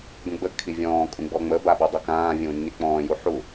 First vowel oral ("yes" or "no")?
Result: no